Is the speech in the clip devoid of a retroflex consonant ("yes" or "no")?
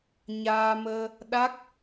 yes